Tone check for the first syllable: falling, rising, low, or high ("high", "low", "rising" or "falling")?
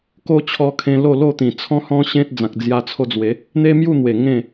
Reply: high